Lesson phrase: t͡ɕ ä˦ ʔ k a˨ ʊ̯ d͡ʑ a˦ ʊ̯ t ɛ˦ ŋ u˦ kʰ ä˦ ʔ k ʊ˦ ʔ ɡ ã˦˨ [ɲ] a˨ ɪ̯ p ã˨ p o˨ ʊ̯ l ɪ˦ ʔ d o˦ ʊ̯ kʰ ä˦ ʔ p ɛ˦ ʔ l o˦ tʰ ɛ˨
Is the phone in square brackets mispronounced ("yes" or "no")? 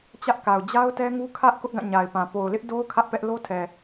no